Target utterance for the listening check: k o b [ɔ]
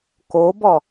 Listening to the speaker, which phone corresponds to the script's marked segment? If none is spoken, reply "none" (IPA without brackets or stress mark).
ɔ